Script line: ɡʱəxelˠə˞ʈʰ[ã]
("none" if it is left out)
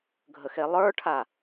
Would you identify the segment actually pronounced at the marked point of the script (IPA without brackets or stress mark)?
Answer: a